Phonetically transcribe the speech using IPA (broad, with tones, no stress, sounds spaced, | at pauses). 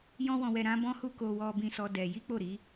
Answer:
j ɔ̃˦ w ɔ̃˧ w ɛ˧ ɾ ã˦ b ɔ̃˦ h u˦ k o˧ w ɔ˧ b ĩ˧ s ɔ˧ d ɛ˧ j i˦ k͡p o˦˨ ɾ i˨˦